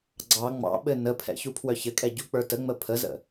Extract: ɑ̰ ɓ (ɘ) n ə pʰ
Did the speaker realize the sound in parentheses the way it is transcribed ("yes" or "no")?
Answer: yes